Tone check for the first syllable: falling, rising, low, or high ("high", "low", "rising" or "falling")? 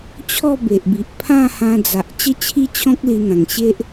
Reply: falling